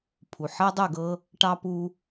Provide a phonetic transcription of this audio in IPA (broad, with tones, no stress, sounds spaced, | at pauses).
pʰ u˨ ħ ɜ˦ dˤ u˦˨ ɡ ɤ˦ | ʈ ɑ˦ p u˦